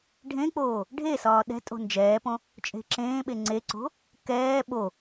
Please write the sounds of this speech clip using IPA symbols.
ɖʱ ẽ k͡p oː | ɖʱ e s ɒː ɗ ɛ̤ tʼ o̤ n d͡ʒ ɛː p õ | t͡ʃʼ e̤ ǁ ẽː ɓ e ŋ͡ǀ e ǀ o̤ | k ɛː ɓ o

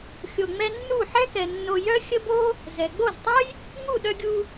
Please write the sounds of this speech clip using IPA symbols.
xʲ o˧ ŋ͡m ɛ˦ nː u˦˨ ħ ɛ˦ k ɛ˨ nː o˧ j œ˦ xʲ ə˦ b o˦ | z ɛ˨ ɡ͡b o˦˨ z tˤ œ˦ j | ŋ u˦˨ ɗ œ˧ ɡʲ u˧

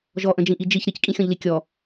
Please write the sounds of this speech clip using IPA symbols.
ʒ ɔ ʔ ə̃ d͡ʒ ĩ ʔ i d͡ʒ i ç ɾ i c kʼ ĩ xʲ ɔ̃ ʎ l i kʲ ɔ

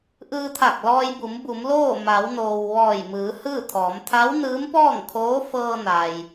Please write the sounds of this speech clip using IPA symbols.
ʔ ɯː˧ t̪ʰ a˧˩ k̚ l ɔː˧ j b u˩˧ m b u˩˧ m l oː˥˨ m a˩˧ w n oː˩ w ʋ ɔː˧˩ j m ɯː˩˧ h ɯː˥˨ t̪ʰ ɔː˩˧ m t̪ʰ a˧˥ w n ɯː˧˥ m p ɔː˥˨ ŋ kʰ oː˧˥ f ɤː˧ n a˩ j

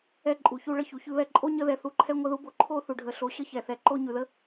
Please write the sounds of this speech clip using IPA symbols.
ɛ˦ ǃʼ u˩ ç u˦ ɭ ə˦ ç u˩ ç ʉ˥ β ɛ˦ ǃʼ o˥ ɲ ə˥ ð ɛ˩ θ u˦ ǃʰ ɛ˥ ŋʷ ə˥ ð u˥ b o˦ ǃʰ o˥ θ u˩ ɖʱ ə˨ ɬ o˨ ɕ ə˥ ç ɛ˩ θ ɛ˨ ǃ o˦ ɲ ʉ˩ ð ə˥

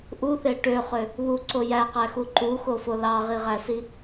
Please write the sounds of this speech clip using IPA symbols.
ʔ u θ e ʈ ø χ ø | β u ǀ o j æ q æ x u ǃ u x o f o l ɑ ʁ i ʁ æ s i

